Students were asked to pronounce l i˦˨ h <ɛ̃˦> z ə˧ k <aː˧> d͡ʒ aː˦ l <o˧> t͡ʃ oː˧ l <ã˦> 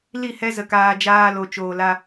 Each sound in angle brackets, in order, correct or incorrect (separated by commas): incorrect, correct, correct, incorrect